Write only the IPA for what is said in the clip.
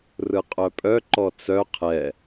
rɯqʼœpʼœǃɔ t͡sœ qʰɛ

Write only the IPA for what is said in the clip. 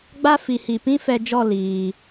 ɡ͡ba˦fi˨hi˨ pĩ˦fɛ˧d͡ʒɔ˦˨ liː˨

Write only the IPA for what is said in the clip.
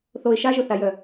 θoɪ̯ ʃaʒɵθajœ

